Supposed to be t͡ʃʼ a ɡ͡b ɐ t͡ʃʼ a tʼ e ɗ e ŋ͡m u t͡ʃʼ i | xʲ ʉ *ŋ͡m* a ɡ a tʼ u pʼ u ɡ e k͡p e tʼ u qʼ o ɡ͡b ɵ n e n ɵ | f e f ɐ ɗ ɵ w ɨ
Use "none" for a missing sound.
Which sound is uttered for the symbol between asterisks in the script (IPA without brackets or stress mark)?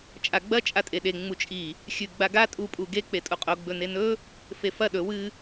ɡ͡b